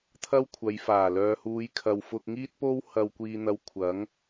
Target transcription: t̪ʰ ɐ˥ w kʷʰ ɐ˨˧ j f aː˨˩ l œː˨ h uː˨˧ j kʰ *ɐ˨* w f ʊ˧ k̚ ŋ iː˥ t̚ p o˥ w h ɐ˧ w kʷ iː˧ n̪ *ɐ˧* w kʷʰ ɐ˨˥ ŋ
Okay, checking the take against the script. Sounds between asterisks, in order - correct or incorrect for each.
correct, correct

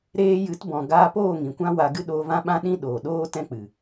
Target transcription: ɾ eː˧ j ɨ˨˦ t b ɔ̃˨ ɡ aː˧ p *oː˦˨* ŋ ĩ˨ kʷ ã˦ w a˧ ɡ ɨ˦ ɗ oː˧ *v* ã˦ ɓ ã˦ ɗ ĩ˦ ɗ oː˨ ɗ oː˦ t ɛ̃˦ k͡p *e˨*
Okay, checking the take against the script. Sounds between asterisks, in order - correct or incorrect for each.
correct, correct, incorrect: ɨ˨

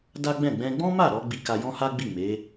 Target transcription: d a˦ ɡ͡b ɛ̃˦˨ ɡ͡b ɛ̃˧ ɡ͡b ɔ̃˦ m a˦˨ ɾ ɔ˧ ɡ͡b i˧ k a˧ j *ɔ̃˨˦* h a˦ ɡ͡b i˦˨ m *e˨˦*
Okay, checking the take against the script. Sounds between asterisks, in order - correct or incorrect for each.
incorrect: ɔ̃˦, correct

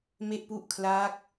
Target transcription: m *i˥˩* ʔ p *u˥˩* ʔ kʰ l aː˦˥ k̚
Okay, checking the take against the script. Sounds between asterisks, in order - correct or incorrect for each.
incorrect: e˥˩, correct

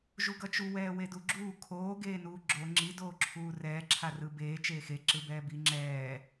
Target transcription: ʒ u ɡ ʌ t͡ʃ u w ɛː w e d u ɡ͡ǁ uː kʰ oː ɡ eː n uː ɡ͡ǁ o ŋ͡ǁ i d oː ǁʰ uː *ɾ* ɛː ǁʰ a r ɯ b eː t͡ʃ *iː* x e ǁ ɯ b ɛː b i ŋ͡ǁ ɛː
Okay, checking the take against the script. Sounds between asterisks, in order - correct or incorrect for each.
incorrect: r, incorrect: eː

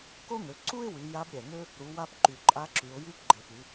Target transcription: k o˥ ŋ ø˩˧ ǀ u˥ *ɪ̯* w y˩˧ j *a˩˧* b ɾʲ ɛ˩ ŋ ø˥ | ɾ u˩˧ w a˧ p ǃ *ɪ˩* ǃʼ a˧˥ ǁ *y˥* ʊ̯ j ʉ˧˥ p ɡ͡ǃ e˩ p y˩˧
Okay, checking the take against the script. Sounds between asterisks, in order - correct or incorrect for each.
correct, incorrect: a˧˥, incorrect: y˩, incorrect: y˩˧

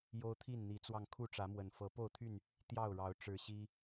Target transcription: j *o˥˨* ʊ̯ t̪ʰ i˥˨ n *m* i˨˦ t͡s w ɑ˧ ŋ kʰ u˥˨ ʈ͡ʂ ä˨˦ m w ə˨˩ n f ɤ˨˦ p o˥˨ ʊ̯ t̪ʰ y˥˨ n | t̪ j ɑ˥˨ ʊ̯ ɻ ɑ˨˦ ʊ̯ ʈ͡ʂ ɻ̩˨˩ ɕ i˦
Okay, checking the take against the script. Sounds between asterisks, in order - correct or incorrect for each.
incorrect: o˦, incorrect: n̪

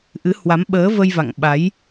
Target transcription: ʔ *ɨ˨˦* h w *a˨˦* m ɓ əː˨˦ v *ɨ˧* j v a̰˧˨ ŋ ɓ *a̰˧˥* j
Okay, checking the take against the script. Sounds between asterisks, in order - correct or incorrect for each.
correct, correct, incorrect: ə˧, incorrect: a˨˦

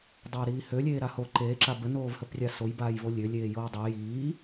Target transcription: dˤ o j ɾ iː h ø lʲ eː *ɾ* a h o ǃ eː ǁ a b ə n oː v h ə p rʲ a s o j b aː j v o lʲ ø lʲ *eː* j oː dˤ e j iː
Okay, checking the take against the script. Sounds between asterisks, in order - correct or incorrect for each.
correct, correct

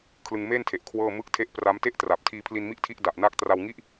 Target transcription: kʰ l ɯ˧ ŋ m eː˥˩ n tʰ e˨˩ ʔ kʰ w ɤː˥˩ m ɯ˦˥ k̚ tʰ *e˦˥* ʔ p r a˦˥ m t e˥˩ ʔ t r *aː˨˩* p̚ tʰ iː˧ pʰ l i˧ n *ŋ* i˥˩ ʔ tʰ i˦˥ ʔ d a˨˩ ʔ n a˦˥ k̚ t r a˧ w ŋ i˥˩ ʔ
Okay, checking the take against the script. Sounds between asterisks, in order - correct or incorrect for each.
correct, incorrect: a˨˩, incorrect: m

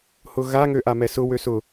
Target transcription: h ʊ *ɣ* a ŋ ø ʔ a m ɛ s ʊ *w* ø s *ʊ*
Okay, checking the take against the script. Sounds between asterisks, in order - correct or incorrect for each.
correct, correct, correct

